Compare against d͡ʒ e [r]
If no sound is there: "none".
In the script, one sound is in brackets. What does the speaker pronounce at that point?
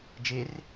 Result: r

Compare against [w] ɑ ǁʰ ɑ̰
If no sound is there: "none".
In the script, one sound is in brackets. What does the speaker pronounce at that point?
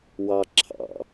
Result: w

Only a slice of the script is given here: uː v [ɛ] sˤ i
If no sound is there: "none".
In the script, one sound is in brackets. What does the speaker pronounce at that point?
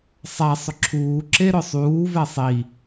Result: ɛ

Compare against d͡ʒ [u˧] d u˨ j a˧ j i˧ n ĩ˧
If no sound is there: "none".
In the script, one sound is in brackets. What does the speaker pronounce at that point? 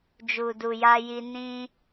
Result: u˨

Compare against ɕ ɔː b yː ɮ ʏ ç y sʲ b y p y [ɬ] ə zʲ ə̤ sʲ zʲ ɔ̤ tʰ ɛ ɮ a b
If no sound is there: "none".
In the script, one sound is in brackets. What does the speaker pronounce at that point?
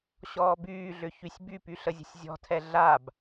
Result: ɬ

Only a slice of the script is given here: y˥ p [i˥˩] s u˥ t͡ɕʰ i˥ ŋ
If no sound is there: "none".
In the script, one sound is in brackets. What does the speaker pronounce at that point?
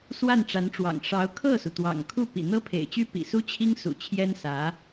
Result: ḭ˨˩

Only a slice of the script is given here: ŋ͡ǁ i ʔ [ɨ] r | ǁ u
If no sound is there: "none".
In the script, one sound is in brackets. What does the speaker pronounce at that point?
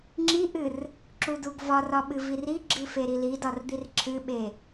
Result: ɨ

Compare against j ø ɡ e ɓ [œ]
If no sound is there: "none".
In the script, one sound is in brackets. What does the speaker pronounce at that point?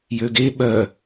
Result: œ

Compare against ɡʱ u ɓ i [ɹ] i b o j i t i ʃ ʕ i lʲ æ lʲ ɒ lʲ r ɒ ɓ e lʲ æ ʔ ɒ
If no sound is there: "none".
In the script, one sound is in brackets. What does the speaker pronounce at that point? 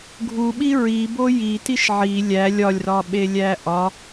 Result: ɹ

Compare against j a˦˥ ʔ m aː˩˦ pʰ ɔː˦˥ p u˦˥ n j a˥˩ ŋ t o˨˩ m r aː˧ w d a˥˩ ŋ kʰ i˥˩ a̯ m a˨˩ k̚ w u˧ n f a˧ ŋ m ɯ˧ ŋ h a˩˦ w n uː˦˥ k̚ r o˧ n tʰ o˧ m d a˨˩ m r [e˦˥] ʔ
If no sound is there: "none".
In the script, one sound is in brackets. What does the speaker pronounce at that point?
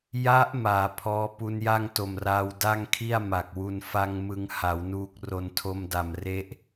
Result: e˦˥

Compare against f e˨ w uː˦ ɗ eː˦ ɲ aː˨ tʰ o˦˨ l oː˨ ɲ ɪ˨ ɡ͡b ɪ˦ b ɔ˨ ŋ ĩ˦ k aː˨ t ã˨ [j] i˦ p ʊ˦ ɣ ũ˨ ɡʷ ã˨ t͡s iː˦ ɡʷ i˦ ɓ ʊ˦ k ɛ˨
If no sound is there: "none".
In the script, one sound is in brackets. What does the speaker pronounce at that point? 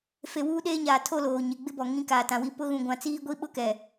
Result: w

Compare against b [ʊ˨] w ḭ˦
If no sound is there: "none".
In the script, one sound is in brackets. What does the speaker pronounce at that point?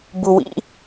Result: u˨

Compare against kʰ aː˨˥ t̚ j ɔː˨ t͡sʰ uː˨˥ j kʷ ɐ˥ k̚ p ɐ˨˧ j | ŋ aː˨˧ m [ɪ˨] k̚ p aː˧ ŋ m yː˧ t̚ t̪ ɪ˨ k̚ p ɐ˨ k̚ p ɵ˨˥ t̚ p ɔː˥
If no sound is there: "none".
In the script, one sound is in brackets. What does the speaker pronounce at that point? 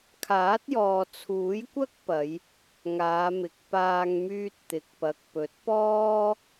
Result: ɪ˨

